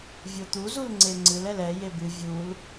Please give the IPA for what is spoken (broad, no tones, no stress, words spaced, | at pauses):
vʲot̪uzul ŋ͡ǀeŋ͡ǀɨl ɛlɛ jebɨ vʲul